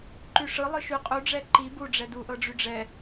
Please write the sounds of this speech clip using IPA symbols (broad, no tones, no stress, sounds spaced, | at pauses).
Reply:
ǃ y ʂ ɯ lˠ ɯ ʃ y qʼ u ɖ͡ʐ ɛ ǃ i b u ɖ͡ʐ ɛ d u ʔ ɤ ɖ͡ʐ y ɖ͡ʐ ɛ